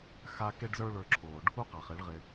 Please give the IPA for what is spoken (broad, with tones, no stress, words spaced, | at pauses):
xa˦ ke˦ɖzə˞˦ ɭə˞˧ǁʰoː˨ɖ | u˦qa˨χe˨˦ɭ ʁɪ˧